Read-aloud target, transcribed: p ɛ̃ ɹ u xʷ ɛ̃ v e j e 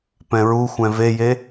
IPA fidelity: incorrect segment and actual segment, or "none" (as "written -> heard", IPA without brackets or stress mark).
none